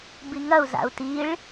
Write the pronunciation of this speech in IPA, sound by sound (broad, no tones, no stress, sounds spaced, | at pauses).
b i ŋ ɐ u̯ z a̰ u̯ t i ɭ